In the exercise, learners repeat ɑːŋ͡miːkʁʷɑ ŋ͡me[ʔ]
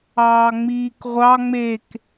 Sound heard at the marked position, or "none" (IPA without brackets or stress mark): k